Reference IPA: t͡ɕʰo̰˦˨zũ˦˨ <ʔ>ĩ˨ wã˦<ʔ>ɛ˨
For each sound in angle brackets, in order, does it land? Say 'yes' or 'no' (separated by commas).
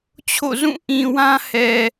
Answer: yes, no